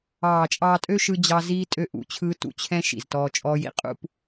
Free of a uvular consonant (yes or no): no